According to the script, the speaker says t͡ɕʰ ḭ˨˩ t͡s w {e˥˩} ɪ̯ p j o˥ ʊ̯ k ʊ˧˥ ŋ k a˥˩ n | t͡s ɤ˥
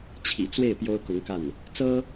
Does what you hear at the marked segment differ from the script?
no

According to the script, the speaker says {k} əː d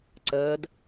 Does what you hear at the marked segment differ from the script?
yes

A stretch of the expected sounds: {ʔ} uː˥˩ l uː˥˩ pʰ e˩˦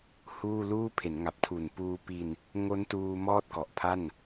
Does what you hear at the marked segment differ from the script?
yes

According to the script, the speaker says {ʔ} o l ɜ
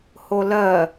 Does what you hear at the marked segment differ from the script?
yes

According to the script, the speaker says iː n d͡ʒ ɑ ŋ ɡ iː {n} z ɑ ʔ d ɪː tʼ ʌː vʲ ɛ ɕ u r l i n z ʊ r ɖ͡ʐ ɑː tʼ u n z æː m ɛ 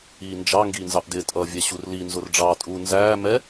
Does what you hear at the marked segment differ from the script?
no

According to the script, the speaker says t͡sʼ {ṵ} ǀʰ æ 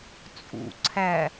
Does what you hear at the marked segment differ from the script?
no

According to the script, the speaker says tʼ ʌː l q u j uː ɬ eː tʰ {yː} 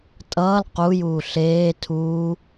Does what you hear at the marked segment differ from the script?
yes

